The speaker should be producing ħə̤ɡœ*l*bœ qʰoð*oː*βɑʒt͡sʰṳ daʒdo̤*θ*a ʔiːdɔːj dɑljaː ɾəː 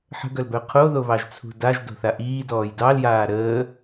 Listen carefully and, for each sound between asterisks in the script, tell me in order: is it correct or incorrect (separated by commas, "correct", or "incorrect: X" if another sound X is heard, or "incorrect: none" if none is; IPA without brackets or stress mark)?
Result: correct, incorrect: o, correct